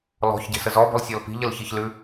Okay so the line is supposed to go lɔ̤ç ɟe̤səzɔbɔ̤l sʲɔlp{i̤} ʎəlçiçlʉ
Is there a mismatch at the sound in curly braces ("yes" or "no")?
no